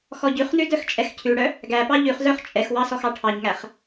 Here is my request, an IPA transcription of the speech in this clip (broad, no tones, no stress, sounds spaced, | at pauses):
x ɔ ɟ ʉ χ n ʉ d œ x t͡ʃʼ ɛ x cʰ ʉ ɽ œ | ɡ æ p ɑ ʎ ʉ χ z œ χ t͡ʃʼ ɛ x w ɑ s ɔ x ɑ ʈʰ ɑ ɲ ŋ æ χ